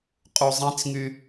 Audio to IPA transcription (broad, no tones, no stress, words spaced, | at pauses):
qʼuzˤĩt͡sŋy